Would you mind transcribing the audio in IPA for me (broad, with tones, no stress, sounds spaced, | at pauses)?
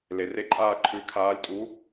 l e˩ r e˥˨ ǃʼ aː˥˨ ǃʰ ʉ˨˥ kʰ aː˨˥ lʲ tʼ u˨˥